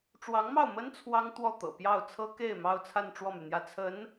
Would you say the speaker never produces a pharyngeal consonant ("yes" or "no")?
yes